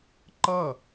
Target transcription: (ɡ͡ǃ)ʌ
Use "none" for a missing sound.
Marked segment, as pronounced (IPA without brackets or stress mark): ǃ